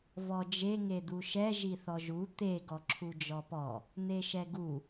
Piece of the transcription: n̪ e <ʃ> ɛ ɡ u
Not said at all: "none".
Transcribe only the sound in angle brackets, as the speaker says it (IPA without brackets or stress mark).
ʃ